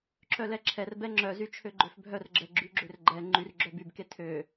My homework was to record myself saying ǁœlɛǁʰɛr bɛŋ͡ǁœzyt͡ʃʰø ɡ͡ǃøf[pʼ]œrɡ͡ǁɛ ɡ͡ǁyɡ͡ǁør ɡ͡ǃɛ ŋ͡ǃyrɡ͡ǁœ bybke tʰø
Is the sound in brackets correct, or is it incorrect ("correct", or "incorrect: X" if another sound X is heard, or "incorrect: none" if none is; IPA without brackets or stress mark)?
incorrect: bʱ